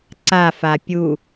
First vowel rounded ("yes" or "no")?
no